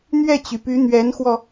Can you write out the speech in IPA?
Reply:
n̪ɥɛ˥˩t͡ɕy˩py˧˥ n̪ɥɛ˧˥nxwɔ˧

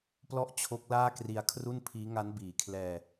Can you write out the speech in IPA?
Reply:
plɔ˥˩ʔt͡ɕʰo˦˥k̚laː˥˩kri˧a̯ kʰru˥˩npʰiː˦˥ ŋa˦˥n biː˨˩kʰlɛː˧

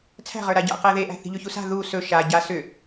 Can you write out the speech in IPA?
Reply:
t͡sʰæ̤ʁə˞ ɾaɟa̰ qæðeʔæ̤ θi̤ʎɵçusa̤ ðu sɵ ʃa ɟa sʏ

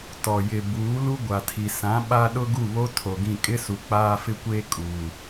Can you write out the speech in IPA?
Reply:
tɔ˨ jɪ˨ buː˨˦lu˦ ɡʷa˨tʰi˨ sã˨˦ɓa˦ ɗʊ˦ɡu˦˨βo˦ tʰo˨ɡĩ˦˨ kʼɪ˦su˨ k͡paː˦fɪ˦kʷeː˦ kʼuː˨

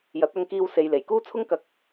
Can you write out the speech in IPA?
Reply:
jɐ˨˥t̚ɐ˧ŋkiː˧w se˨jle˨˩jkuː˥ t͡sʰʊ˥ŋkɐ˧k̚

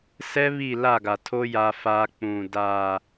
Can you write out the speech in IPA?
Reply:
sɛ˦βi˦˨ la˦˨ɡa˨tʰo˦ ja˦faː˦ k͡pũ˨ daː˨

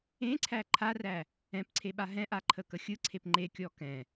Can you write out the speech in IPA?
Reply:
ẽǀʰæ ǃʰaræ | ɛ̃pǀʰeɓa ɦɛ̃ʔaǃʰəkə xʲɯǀʰep ŋ͡ǃekʲɔ kɛ̃

